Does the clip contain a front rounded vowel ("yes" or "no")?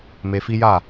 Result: no